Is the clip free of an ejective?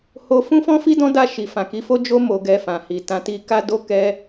yes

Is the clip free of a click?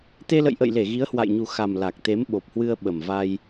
yes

